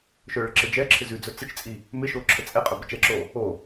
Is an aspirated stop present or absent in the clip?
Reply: present